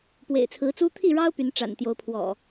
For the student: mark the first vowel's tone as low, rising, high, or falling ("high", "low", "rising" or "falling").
low